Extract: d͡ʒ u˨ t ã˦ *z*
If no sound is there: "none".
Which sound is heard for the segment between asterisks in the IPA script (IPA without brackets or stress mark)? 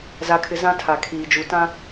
none